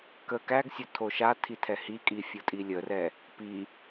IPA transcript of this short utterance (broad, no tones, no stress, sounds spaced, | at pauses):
k ə k æ ɡ sʲ ʊ tʰ o ʃ a tʰ i tʰ ɛ h i kʼ i fʲ ʊ tʼ i lʲ ə r ɛ | p i